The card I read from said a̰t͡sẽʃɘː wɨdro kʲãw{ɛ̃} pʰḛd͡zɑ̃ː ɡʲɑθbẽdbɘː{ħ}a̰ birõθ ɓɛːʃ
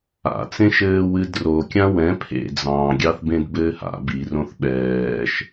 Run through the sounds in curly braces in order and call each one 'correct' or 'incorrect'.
correct, incorrect: h

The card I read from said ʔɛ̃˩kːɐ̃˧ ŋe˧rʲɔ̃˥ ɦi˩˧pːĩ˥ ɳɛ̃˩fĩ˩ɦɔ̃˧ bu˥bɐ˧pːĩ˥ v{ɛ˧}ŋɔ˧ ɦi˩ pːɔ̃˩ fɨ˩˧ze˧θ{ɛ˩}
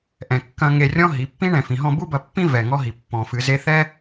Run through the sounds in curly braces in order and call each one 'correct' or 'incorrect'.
incorrect: ɛ˩, incorrect: ɛ˥

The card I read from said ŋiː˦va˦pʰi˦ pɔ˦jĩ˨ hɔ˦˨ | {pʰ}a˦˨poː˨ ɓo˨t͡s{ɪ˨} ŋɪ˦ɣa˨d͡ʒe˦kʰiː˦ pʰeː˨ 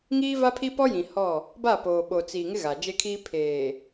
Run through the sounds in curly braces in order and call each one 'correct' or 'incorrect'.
incorrect: b, incorrect: i˨

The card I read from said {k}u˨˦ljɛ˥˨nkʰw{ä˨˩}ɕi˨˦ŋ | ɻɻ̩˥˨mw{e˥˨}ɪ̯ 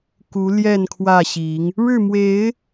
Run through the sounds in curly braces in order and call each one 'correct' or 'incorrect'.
correct, incorrect: ä˥˨, incorrect: e˨˦

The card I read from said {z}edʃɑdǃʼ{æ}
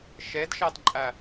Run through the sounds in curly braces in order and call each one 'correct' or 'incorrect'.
incorrect: ʃ, correct

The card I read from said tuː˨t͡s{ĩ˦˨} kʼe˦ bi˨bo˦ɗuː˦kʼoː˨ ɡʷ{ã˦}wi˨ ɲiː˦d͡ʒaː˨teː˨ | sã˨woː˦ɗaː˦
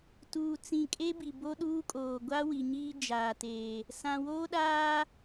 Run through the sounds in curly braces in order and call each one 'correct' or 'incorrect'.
incorrect: ĩ˨, incorrect: a˦

